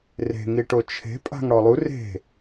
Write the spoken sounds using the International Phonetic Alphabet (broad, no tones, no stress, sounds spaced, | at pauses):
r e̤ ŋ i ʈ o t͡ʃʰ e̤ pʼ a̤ ŋ ɽ ɔ lˠ u r e̤